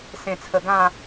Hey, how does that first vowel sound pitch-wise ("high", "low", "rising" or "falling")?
low